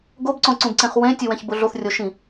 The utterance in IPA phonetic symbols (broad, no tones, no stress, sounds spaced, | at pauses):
ɡ o b ǀ õ ǀ ũ b ǀ ẽ χ w ẽ tʲ u w ɛ̃ ç b ʊ ɮ o θ rʲ o ʃ ĩ